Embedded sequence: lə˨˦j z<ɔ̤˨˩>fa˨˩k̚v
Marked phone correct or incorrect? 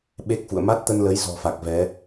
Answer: correct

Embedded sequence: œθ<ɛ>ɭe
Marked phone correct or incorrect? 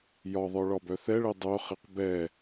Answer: correct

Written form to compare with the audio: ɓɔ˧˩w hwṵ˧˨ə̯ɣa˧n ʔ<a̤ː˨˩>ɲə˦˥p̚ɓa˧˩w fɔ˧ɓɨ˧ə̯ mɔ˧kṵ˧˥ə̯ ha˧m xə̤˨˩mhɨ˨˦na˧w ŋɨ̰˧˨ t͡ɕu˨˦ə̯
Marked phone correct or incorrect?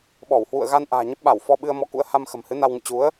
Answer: correct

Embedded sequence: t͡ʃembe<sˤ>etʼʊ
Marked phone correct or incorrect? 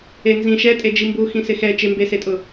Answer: incorrect: s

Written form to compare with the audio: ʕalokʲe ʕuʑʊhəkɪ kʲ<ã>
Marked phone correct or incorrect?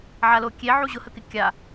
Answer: incorrect: a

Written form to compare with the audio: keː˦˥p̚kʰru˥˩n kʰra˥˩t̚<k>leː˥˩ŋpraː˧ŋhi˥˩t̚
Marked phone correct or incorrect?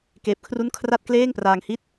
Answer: correct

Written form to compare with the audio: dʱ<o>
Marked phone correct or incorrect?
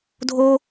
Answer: correct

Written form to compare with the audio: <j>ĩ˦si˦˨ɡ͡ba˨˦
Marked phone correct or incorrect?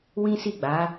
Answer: incorrect: w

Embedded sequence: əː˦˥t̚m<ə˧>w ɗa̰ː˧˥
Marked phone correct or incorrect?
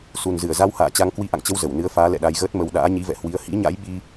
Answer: correct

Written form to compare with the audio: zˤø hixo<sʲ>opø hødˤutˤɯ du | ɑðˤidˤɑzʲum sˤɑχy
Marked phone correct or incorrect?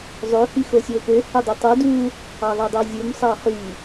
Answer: correct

